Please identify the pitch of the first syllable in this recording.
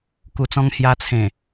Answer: low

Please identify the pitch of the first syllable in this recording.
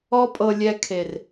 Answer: high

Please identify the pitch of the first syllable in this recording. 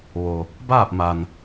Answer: low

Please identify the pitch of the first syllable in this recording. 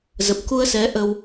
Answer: low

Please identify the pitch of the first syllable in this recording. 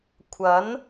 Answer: rising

